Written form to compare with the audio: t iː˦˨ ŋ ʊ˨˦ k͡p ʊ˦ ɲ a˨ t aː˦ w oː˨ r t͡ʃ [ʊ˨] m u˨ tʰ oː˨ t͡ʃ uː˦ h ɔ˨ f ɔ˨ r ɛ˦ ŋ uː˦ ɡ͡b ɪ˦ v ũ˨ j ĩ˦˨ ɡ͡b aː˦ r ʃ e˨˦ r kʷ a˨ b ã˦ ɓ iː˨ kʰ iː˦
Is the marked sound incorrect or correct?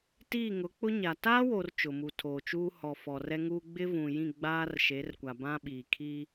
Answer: correct